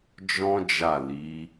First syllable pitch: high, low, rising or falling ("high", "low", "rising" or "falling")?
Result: high